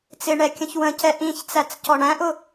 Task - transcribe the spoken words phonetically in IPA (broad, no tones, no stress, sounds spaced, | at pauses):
t͡s ɪ ɳ ɛ kʲ ə̃ ç w ə̃ c ɛ ʔ ĩ ç t͡s æ t͡s c ɔ ɳ æ̃ ʔ ʊ